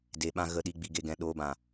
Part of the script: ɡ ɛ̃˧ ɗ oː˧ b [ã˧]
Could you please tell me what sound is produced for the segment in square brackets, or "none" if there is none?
ã˨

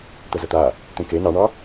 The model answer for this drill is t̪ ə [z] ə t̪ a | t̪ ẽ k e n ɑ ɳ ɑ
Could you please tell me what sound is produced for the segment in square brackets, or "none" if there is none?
z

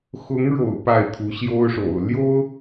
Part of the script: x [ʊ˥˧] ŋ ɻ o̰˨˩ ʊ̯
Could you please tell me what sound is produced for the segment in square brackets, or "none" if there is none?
ʊ˧˥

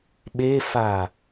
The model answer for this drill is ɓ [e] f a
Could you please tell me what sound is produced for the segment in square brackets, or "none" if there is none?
e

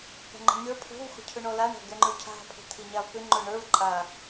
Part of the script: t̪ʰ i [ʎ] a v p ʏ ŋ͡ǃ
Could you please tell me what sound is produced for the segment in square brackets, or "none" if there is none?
ɲ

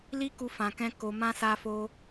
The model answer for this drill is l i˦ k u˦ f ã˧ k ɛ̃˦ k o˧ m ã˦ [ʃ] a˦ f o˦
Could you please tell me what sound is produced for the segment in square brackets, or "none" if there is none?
s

